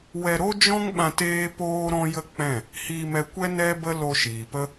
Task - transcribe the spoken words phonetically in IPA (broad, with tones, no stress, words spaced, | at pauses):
wɛ˧ɾo˦d͡ʒɔ̃˦ŋɓã˧t eː˦poː˦ ɾɔ̃˦jə˦k͡pɛ̃˦˨ | hiː˧mɛ˧kʷɛ˦ nɛ˦bə˦ lo˧ʃiː˨pə˦